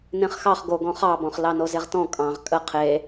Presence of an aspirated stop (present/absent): present